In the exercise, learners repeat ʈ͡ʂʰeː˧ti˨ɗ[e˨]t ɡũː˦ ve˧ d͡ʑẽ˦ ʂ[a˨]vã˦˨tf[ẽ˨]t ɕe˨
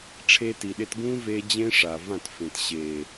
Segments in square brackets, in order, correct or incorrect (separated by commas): incorrect, correct, correct